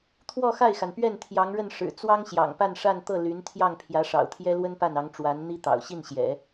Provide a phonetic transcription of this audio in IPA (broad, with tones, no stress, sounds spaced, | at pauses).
t̪ʰ w ɔ˥˧ x a˥˩ ɪ̯ x a˩ n p ɥ ɛ˥˩ n t̪ʰ j ɑ˧˥ ŋ ɻ ə˥˩ n ʂ ɻ̩˨˩ t͡s w ɑ˥ ŋ ɕ j ɑ̰˨˩ ŋ p a˥˧ n ʂ a˥˧ n t̪ ɤ˥˩ l y˧˥ n t̪ʰ j ɑ˥˩ ŋ pʰ j ä˧˥ ʂ ɑ̰˨˩ ʊ̯ t̪ʰ j ɛ˥ l w ə˥ n p a˥˩ n ɑ˧˥ ŋ ʈ͡ʂ w a˧˥ n n̪ i˥ t̪ ɑ̰˨˩ ʊ̯ ɕ i˥˩ n ɕ j ɛ̰˨˩˦